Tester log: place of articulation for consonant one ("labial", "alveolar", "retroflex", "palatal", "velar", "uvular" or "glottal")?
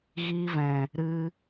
velar